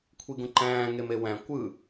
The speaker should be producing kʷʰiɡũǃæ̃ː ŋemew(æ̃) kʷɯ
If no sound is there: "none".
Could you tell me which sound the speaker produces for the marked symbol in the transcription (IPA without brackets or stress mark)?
æ̃